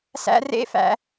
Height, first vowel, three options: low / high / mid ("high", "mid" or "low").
low